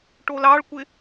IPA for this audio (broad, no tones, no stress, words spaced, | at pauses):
ʈolɑɭkʷɪ